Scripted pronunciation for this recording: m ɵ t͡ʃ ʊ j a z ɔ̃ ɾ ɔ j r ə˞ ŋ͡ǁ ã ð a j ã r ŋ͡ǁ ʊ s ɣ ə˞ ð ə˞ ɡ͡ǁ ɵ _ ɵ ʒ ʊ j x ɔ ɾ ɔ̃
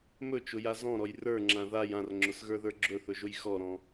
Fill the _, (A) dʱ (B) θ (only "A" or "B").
B